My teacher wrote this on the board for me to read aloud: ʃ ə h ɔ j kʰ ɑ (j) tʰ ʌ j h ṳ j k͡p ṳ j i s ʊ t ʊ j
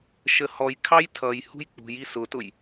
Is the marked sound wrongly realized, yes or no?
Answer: no